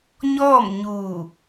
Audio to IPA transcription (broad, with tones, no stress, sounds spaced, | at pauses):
ɲ ɔː˥˨ m ɲ uː˧˩